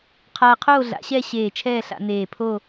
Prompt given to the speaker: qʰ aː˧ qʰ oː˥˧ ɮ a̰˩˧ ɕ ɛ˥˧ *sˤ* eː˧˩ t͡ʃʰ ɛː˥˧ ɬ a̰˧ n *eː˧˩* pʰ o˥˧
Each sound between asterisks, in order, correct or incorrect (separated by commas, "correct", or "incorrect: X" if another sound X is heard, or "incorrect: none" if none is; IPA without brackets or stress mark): incorrect: ɕ, correct